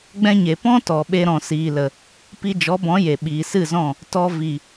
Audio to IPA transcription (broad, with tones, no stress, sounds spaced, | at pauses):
ɡ͡b ɛ̃˧ ɲ e˨ p ɔ̃˦ t ɔ˨ ɓ e˧ ɾ ɔ̃˨ s iː˨ l ə˨ | p i˧ d͡ʒ ɔ˨˦ b ɔ̃˨˦ j e˨ ɓ iː˨ s ɨ˦˨ z ɔ̃˦˨ | t ɔ˦ v i˨